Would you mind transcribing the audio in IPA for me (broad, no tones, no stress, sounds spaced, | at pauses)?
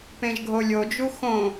p ẽ ʒ ɡʱ o lʲ o d͡ʒ u x õ